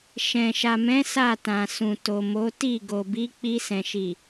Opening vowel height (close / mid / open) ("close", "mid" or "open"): mid